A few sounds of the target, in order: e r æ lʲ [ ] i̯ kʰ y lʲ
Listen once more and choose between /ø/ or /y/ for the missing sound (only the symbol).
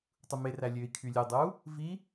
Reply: ø